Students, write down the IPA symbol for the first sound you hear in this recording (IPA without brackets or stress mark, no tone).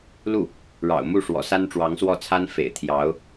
l